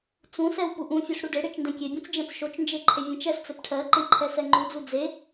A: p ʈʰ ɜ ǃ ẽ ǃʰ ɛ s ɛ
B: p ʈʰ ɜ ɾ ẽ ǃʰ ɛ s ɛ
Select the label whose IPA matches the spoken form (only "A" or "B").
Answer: A